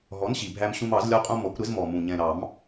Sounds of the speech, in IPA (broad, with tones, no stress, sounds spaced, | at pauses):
ɦ ɔ˨˥ n ɕ i˨˩ bʱ æ˧ m ɕ ũ˧ m ɑ˨˩˦ z lʲ ɒ˧ qʼ ũ˧ m ɔ˨˥ kʷ ɾ ɪ˨˥ z m ɔ˨˩ m ũ˨˩ ɲ ɛ̃˨˩ ɾ ɑ˨˩˦ m